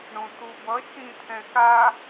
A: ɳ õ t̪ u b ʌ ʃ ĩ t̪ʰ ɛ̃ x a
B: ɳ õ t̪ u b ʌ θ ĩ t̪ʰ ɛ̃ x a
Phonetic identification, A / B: A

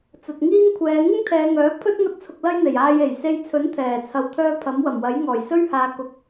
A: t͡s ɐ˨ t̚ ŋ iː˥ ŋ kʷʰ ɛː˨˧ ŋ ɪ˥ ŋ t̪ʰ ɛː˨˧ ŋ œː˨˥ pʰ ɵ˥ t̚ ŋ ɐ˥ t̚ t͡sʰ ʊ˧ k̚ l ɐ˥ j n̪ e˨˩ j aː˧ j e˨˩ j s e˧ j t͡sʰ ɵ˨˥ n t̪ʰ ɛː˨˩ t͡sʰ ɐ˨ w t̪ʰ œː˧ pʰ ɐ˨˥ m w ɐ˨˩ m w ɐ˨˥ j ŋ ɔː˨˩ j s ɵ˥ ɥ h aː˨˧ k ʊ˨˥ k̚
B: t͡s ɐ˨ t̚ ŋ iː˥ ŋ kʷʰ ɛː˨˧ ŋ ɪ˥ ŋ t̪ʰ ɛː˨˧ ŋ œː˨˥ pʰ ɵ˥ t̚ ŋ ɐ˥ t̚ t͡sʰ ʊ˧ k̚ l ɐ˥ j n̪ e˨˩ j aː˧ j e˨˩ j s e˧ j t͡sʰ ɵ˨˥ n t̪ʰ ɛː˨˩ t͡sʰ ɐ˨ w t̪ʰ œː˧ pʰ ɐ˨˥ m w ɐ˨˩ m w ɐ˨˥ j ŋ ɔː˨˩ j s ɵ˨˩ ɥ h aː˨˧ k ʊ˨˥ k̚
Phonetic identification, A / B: A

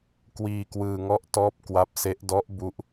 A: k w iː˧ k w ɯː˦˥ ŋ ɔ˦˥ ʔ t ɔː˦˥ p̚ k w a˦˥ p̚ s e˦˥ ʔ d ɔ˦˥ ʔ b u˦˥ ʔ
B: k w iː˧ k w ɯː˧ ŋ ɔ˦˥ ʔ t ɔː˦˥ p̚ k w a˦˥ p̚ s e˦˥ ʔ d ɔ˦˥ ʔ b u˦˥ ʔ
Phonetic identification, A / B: B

